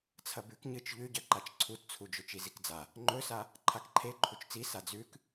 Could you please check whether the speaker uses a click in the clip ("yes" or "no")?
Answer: yes